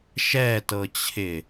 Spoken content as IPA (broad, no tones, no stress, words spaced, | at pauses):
ʃɛtɤt͡ɕʰɪ